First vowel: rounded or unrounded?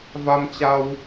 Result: unrounded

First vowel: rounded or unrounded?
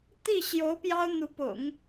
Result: unrounded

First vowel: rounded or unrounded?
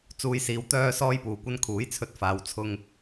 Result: rounded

